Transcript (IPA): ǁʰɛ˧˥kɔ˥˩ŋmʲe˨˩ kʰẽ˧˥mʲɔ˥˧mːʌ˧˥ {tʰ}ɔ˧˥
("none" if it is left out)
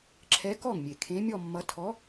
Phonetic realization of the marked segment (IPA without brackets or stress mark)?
tʰ